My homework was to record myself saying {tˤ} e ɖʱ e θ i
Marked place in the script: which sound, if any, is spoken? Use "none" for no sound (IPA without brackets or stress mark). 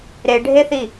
ɾ